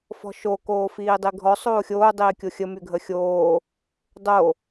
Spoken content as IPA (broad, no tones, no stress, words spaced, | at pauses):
fɔ̤ʃo koːfiːdˤiɡʱɔ sˤoːxʲoː dˤiːkʲoxʲə myɡʱəxʲoː | dˤo